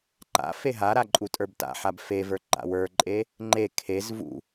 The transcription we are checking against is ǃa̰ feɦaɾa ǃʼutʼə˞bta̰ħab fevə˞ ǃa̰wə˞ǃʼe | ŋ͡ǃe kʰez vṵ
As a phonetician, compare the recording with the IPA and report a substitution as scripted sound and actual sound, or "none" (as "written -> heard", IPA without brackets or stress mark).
none